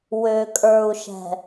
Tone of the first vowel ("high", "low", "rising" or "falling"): low